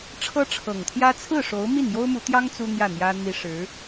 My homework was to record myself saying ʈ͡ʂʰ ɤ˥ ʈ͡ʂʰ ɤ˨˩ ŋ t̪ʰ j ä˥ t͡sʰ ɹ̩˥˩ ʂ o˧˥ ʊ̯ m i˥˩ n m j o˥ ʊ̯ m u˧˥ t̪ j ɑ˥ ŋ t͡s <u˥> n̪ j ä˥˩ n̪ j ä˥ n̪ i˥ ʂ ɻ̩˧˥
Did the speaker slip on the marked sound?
no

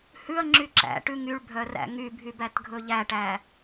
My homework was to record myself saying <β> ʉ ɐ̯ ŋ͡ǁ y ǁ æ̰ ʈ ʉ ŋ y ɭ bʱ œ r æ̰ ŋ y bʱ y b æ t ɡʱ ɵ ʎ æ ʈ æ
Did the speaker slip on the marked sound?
yes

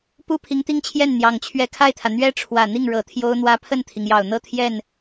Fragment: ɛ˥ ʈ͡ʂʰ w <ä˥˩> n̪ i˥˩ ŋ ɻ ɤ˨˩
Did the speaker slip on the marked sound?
yes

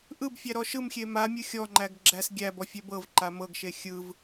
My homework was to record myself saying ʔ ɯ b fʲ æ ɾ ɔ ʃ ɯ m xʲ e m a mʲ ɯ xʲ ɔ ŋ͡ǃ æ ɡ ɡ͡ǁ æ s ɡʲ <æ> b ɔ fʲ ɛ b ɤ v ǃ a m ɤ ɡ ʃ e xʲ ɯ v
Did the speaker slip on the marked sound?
no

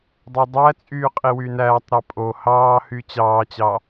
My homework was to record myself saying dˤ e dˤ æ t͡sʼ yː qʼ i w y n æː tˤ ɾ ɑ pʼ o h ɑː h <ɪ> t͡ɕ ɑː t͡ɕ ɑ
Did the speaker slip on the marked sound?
yes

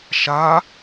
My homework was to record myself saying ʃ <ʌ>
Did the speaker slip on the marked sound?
yes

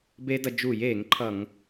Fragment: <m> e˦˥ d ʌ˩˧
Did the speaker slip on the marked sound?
yes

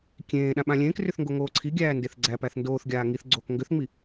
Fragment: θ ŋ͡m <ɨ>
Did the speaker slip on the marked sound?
yes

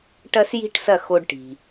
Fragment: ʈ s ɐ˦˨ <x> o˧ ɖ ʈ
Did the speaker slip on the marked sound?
no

